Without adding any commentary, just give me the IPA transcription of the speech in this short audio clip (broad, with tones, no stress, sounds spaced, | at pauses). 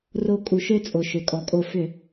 r o˧˩ kʼ u˩ ʃ ø˦ t͡sʼ o˩ ʃ ø˩ kʼ ɔ˩ kʼ o˧˩ f ʏ˧˩˧